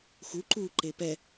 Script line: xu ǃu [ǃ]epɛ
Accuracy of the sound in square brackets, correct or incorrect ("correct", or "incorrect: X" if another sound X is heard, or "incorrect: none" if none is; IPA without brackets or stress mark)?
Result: correct